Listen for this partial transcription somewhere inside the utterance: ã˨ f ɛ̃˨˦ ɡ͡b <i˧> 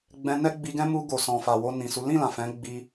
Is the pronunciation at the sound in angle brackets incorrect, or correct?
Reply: correct